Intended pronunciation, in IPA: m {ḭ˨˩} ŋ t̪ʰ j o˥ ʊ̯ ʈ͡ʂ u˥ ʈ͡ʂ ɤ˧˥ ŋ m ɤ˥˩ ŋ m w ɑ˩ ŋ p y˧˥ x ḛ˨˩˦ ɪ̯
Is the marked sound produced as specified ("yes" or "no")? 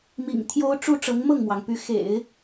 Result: yes